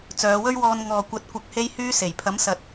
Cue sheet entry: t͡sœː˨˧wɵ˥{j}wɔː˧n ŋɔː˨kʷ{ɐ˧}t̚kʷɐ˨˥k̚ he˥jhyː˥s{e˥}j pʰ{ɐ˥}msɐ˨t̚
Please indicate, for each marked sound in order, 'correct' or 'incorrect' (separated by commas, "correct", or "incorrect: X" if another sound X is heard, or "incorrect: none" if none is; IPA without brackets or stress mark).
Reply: incorrect: ɥ, incorrect: ɐ˨˥, incorrect: e˨˩, incorrect: ɐ˨˥